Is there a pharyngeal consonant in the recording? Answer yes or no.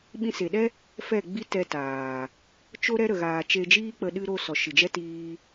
no